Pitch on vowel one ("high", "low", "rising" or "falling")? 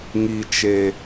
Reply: low